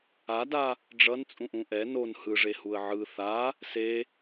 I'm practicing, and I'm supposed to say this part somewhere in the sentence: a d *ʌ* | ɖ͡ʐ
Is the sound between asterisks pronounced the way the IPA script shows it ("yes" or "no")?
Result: no